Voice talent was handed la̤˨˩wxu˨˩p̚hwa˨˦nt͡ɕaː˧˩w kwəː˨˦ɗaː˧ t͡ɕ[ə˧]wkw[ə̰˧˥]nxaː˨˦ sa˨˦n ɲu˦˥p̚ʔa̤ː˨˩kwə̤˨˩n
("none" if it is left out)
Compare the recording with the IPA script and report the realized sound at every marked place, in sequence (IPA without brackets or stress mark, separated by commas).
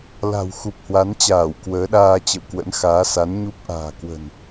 ə̰˧˨, ə̰˧˥